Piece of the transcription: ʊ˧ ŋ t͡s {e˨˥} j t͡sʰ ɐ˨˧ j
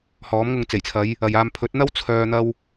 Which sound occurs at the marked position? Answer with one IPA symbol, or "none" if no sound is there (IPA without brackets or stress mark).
e˨˩